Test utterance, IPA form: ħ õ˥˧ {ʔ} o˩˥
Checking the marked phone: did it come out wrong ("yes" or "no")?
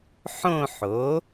yes